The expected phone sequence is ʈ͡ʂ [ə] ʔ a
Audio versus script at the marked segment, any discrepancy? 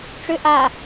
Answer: yes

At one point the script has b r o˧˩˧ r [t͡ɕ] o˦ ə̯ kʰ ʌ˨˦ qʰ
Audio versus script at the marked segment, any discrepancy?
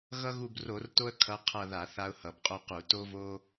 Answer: yes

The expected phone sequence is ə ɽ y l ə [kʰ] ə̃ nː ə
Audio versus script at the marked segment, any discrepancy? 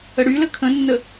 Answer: no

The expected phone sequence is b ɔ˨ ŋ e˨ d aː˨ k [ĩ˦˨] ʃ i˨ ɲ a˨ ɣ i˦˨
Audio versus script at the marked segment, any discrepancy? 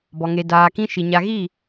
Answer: yes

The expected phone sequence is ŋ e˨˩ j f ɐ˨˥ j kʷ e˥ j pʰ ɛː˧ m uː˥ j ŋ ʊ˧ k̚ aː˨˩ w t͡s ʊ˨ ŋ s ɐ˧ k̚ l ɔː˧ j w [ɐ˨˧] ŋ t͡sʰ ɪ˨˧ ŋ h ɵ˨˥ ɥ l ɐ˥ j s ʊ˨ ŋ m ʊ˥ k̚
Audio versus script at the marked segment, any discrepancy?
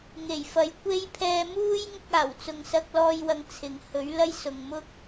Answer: yes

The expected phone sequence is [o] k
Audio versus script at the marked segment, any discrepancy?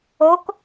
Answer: no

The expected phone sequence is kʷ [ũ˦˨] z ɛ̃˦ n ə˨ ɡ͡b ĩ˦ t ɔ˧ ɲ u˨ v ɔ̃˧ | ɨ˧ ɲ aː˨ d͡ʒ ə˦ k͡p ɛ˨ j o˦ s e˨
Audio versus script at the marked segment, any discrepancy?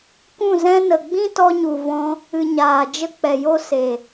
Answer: no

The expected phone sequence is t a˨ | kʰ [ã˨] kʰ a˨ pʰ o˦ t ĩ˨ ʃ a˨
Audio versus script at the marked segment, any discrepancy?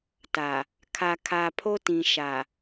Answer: yes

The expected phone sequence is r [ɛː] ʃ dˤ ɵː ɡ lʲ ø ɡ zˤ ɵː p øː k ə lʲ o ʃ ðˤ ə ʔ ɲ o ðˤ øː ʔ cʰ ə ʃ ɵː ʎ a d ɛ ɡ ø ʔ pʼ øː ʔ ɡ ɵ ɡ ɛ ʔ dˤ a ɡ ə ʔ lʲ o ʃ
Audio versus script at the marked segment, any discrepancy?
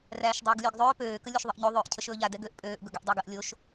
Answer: yes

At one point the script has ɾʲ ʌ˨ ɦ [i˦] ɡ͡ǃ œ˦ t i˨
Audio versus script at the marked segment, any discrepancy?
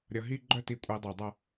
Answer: no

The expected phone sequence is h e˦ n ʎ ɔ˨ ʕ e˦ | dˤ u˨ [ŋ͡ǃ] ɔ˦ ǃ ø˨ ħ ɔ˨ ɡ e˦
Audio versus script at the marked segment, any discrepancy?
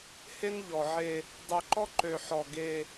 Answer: yes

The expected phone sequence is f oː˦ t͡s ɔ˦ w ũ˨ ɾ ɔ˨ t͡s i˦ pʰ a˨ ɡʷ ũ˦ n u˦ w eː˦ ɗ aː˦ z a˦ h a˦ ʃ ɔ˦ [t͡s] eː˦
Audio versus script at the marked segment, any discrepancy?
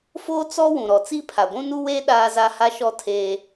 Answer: yes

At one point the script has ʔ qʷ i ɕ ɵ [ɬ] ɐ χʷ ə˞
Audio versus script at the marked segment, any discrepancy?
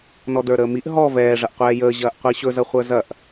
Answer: yes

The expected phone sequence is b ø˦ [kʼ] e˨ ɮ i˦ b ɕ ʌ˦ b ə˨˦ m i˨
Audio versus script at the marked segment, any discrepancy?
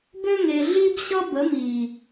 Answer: yes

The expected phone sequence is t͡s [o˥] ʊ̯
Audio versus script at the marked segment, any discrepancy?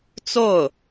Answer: yes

